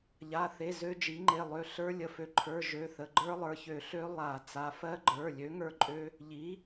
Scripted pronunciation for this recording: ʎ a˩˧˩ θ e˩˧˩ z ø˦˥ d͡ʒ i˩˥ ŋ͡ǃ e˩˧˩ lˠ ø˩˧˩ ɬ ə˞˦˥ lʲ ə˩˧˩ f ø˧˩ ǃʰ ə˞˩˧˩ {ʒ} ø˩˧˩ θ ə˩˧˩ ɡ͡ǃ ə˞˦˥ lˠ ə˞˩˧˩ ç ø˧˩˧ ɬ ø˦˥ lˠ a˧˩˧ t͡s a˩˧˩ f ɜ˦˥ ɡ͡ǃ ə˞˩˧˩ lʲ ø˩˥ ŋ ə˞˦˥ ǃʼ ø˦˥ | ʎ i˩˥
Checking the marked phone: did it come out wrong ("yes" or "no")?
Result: no